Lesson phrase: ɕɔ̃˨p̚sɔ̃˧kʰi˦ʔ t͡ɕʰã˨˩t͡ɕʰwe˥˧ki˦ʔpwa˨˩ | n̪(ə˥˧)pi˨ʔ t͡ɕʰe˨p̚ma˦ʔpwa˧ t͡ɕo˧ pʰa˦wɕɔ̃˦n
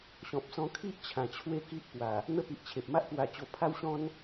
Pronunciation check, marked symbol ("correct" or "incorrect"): correct